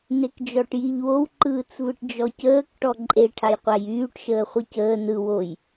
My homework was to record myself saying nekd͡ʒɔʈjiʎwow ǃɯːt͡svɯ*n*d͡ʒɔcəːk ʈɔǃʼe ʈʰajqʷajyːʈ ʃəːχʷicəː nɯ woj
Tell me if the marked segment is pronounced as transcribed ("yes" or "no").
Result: no